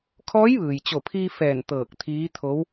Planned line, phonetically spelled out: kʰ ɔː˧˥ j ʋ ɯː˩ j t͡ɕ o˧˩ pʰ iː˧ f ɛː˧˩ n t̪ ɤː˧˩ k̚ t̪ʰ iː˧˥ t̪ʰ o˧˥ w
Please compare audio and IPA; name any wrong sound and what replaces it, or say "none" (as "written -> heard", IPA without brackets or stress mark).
none